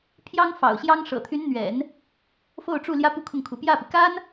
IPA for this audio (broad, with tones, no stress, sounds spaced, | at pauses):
pʰ j ɑ˥ ŋ f ɑ̰˨˩ ʊ̯ ɕ j ɑ˥ ŋ ʂ ɤ̰˨˩ t̪ʰ y˧˥ n n̪ ɥ ɛ̰˨˩˦ n | f o˥˧ ʊ̯ ʈ͡ʂ u˥˩ l j ä˥ p u˥˧ kʰ ʊ˥˩ ŋ kʰ u˧˥ p j ä˥˩ p i˩ k a˥ n